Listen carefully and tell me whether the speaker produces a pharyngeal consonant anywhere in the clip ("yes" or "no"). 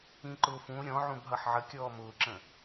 yes